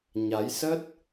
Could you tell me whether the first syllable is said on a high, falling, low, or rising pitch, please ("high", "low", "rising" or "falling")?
rising